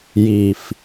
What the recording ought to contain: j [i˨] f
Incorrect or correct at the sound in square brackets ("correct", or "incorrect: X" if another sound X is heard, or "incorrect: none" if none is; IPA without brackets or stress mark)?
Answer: correct